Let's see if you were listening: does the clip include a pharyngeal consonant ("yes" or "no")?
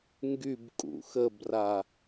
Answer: no